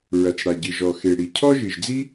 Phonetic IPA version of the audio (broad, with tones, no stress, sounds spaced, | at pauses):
ɹ ɐ˩ t͡s ɽ a˩ ɟ ɨ˩ ʒ ɔ˩ x e˩ ɽ i˩ cʰ ɔ˥ ʒ ɨ˩ ʒ d͡z i˥